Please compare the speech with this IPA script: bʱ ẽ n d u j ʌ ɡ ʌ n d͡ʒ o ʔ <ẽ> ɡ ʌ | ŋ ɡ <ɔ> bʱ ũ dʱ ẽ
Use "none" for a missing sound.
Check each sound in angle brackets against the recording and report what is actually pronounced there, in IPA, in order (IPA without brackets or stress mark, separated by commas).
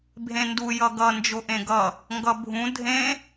ẽ, ʌ